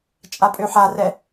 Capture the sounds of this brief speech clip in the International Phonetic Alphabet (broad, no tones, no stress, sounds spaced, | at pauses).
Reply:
t͡ʃʼ a pʼ ø ħ a r ɛ